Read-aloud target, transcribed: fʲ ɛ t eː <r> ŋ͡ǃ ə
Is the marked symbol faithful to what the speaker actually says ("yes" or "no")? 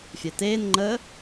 no